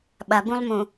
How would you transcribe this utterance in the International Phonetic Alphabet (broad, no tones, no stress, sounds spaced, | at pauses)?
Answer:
ɓ ɐ b ũ lˠ m ũ